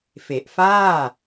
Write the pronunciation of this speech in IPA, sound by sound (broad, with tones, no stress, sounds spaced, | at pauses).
f e˨˩ ʔ f aː˥˩